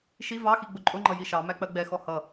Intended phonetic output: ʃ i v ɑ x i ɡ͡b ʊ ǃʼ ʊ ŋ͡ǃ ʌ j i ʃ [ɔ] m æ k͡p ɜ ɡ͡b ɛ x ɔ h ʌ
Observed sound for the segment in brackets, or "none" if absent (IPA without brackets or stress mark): ɑ